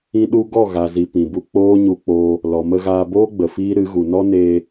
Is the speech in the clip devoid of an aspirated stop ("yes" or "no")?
yes